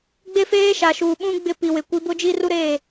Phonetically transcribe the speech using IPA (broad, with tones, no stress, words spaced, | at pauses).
ɡ͡be˦feː˦ ʃa˨ʃuː˨ɓũ˦ ɡ͡bɪ˦˨ pi˨wɪ˨ kʷi˨˦bʊ˦d͡ʒi˦ ru˦ɾeː˦˨